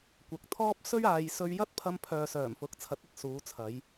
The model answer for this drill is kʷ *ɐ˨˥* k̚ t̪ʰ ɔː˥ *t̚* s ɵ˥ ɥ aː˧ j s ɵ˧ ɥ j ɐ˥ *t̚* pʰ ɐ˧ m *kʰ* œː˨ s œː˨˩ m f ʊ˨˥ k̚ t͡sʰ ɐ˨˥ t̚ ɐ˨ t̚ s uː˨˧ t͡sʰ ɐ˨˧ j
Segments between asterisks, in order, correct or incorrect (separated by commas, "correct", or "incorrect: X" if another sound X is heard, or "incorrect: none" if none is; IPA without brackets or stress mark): correct, incorrect: p̚, correct, incorrect: pʰ